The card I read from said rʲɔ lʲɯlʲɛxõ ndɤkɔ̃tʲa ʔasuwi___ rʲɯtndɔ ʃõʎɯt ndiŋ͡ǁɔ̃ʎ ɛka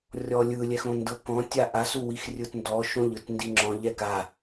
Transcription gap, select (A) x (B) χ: A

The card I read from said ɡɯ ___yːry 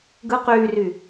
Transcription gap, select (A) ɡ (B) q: B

